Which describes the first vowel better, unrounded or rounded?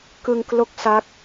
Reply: unrounded